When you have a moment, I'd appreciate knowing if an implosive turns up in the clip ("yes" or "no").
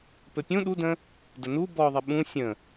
yes